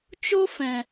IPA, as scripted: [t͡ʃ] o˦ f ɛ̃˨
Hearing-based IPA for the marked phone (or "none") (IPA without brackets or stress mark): t͡ʃ